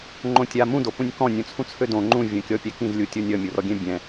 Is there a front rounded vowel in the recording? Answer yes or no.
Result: yes